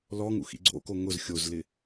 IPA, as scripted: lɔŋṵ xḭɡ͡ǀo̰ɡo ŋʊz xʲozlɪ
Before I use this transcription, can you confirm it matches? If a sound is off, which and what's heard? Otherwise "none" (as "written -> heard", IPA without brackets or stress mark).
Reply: ɡ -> k